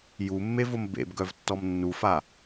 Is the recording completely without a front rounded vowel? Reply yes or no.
no